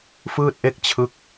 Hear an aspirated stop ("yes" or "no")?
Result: yes